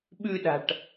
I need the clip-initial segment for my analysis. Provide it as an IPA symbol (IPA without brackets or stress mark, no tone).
ɓ